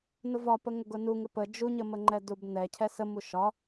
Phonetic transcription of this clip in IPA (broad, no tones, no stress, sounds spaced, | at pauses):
n ʊ v ɒ p ə ŋ ʊ ɡ ʊ n u ŋ ɪ p ə d͡ʒ u ɲ ə m ə ŋ͡ǃ ɛ d u b n ɛ cʰ ɛ s ə m u ʃ ɒ